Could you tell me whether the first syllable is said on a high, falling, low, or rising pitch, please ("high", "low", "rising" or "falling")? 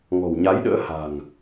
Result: low